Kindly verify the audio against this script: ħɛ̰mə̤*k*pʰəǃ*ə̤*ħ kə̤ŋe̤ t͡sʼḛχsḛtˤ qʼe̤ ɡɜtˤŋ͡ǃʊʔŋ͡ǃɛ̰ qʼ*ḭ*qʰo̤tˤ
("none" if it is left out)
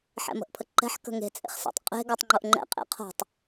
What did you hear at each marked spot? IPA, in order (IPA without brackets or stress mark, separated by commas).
ʔ, ɛ̤, ḛ